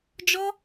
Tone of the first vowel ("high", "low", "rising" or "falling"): high